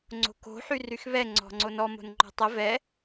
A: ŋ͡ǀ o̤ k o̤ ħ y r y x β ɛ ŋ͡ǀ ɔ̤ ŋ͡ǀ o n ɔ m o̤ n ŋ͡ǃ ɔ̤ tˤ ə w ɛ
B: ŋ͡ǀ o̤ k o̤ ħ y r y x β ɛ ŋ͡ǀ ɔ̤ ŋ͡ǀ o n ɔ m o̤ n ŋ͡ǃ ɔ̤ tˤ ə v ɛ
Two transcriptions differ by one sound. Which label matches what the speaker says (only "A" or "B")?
B